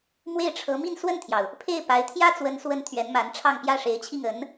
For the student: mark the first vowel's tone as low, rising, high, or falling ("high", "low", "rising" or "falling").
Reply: falling